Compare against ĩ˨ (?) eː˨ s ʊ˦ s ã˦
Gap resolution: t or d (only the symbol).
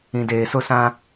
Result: d